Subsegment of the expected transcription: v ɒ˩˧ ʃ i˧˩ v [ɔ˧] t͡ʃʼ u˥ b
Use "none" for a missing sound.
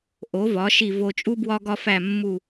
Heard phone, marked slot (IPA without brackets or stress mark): o˧